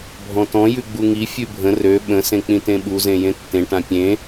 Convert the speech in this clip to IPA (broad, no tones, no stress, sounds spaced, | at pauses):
bʱ ɔ̃ t ɔ̃ j ʉ ɡ͡b u ŋ i fʲ ʉ bʱ ə̃ r ø ɓ ə̃ s ẽ k͡p ĩ t ẽ ɓ u z ẽ j ẽ tː ẽ ʈ ã pʲ ẽ